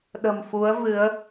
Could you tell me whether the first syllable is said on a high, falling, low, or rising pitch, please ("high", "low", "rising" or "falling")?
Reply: low